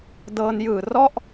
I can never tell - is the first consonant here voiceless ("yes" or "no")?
no